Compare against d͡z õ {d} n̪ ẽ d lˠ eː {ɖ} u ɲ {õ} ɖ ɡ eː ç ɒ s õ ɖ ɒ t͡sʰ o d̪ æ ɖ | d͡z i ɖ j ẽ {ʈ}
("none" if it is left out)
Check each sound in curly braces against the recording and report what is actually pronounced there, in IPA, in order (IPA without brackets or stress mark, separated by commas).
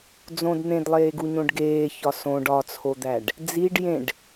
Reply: d, ɡ, õ, ɖ